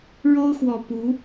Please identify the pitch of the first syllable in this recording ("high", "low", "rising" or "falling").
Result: high